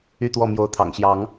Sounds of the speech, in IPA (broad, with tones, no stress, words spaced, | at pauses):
y˥˨t̪wɔ˥˨ mjo˨˦ʊ̯t̪ʰɑ̰˨˩ŋɕjɑ˨˦ŋ